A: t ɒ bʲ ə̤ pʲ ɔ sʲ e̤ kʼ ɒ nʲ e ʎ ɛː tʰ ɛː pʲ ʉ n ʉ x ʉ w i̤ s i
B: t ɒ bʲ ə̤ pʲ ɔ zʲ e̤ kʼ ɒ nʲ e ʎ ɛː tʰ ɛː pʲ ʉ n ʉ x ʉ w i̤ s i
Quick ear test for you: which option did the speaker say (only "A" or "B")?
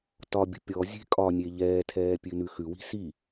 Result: B